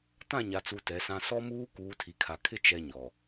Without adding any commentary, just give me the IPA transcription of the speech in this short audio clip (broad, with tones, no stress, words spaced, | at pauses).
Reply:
tã˦˨ɲa˨t͡su˨ tɛ˨˦sã˦ sɔ˦muː˦ kuː˨˦tʰi˨kʰa˨ kʰɪ˦ t͡ʃɛ˦ɲɔ˨